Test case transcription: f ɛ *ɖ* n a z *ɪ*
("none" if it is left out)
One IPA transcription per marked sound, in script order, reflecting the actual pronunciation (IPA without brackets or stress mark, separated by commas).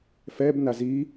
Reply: b, i